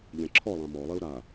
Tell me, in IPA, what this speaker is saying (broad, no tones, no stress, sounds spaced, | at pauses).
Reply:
ʎ ɛ̃ ǁʰ ɔ lˠ ã m ɔ lˠ i u̯ ɾ a